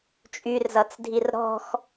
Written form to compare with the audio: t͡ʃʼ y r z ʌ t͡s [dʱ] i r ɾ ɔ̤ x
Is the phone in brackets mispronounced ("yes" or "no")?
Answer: no